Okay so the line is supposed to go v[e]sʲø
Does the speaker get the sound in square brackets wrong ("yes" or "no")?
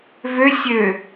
yes